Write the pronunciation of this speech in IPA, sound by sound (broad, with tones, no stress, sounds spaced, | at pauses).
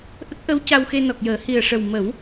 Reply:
ʔ ə˦˥ k̚ ʔ ə˧˥ w c a˧ w x e˧ n ɔ˨˩ k̚ j əː˨˩˦ h i˨˩ ə̯ ʂ ə˨˩ w m ə˨˩˦ w